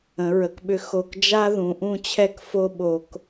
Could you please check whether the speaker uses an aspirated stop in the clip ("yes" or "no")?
yes